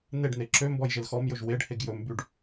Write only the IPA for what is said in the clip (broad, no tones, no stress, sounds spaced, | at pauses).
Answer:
n e ɖ n e ǁ ø m b ɔ j ʒ e l x ɔ m j ɵ ʒ w e ɖ h e ɡ j ɵ m b y ɖ